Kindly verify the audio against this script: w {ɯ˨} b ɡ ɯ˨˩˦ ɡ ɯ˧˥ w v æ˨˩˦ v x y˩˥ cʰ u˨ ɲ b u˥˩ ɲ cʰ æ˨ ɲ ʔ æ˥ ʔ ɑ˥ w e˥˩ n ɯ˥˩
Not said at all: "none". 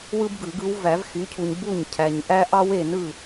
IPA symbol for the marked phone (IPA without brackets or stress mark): ɯ˥